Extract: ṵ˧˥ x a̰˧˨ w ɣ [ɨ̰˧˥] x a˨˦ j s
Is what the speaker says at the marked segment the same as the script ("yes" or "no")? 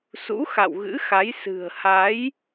yes